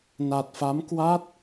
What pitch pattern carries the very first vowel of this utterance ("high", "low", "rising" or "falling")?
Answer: low